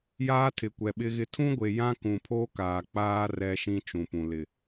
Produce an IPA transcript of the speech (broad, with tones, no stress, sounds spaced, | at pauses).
j aː˦ tʰ ɪ˨ kʷ ɛ˨ ɓ ɪ˦ ɣ ɪ˦ tʰ ũ˦ ɡʷ e˨ j ã˦ k ũ˨ pʰ o˦ k aː˨ k͡p aː˦ r ɛ˦ ʃ ĩ˦ t͡ʃ ũ˨ p ũ˨ l ɪ˨